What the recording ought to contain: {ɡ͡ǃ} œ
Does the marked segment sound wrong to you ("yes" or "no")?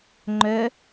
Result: yes